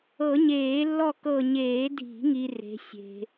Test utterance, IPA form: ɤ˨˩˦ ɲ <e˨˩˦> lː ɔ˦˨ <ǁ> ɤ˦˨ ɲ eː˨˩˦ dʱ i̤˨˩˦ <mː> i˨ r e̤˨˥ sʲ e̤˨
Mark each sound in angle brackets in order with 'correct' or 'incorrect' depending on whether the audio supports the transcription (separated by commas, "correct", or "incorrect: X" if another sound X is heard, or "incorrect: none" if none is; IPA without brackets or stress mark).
incorrect: eː˨˩˦, incorrect: k, incorrect: ŋ